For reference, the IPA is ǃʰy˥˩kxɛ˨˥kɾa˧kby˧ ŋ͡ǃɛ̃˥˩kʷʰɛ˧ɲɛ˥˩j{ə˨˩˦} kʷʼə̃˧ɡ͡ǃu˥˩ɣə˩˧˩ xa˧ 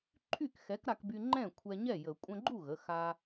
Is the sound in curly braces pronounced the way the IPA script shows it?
yes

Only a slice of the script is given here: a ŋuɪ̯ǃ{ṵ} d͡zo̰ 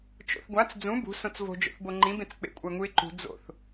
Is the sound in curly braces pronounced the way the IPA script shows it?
no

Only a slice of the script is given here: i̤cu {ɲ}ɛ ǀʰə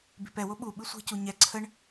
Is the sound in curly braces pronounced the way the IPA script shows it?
yes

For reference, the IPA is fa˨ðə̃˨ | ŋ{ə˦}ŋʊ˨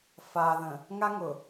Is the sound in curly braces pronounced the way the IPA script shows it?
no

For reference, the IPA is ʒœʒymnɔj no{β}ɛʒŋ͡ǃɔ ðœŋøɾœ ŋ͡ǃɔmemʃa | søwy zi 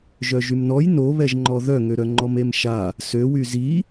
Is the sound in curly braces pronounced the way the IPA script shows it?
yes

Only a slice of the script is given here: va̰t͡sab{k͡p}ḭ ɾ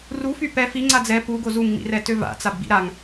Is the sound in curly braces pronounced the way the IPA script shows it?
no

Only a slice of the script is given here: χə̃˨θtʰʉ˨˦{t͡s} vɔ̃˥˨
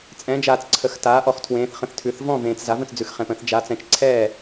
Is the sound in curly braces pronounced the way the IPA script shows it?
no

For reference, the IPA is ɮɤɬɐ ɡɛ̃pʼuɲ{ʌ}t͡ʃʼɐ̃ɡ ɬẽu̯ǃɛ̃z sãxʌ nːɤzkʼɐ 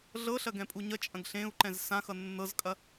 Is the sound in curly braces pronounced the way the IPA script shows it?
yes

